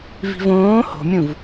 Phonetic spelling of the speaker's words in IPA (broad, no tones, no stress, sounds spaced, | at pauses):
v i̤ v õː h o̤ mʲ ũ v